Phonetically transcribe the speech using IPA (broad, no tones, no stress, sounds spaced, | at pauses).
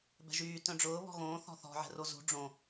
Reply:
b ɛ̤ ʒ yː t œ̃ ɖ͡ʐ ʊː β ɔ̤ ɣ õː θ ɔ̤ θ ɔ̤ ʕ ɛ̤ r o z ṳ ɖ͡ʐ õ